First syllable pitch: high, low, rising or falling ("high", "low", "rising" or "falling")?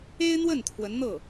high